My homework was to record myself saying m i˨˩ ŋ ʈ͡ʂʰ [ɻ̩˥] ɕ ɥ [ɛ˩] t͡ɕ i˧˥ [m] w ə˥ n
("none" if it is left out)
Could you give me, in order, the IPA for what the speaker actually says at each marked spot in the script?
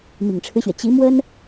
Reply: ɻ̩˦, ɛ˩, m

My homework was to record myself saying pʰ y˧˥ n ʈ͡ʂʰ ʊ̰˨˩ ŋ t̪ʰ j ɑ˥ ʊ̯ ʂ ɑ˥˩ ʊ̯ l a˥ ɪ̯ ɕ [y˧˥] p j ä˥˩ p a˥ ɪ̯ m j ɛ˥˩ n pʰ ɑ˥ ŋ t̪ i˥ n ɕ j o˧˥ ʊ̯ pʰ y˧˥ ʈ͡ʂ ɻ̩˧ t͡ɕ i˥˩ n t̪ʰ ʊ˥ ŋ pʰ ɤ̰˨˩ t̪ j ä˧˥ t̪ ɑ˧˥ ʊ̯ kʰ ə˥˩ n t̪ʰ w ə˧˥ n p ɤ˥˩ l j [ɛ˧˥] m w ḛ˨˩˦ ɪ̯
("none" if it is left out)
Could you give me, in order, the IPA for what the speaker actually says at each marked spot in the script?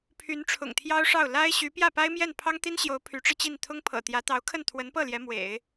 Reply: y˧˥, ɛ˧˥

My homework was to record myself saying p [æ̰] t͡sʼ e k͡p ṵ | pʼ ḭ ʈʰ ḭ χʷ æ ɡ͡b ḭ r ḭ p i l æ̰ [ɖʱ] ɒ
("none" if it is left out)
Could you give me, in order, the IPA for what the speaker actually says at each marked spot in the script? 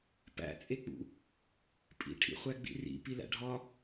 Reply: æ̰, ɖʱ

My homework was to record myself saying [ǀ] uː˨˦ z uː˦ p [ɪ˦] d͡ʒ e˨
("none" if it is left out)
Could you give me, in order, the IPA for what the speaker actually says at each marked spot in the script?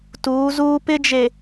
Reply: t, ɪ˦

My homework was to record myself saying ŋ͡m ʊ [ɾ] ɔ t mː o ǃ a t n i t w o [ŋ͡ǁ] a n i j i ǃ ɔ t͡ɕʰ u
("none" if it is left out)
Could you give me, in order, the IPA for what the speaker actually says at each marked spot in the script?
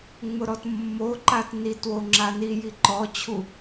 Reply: ɾ, ŋ͡ǁ

